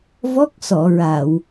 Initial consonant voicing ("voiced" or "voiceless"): voiced